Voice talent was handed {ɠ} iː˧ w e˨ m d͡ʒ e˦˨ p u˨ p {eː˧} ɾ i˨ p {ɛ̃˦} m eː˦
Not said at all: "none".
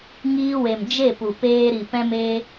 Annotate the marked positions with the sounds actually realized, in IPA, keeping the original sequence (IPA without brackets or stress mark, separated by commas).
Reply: ŋ, eː˧, ɛ̃˦